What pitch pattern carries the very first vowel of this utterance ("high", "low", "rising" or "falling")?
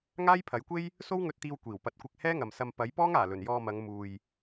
high